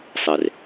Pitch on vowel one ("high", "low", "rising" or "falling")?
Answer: low